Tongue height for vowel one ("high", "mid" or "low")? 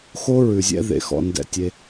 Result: mid